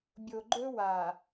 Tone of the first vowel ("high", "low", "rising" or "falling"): low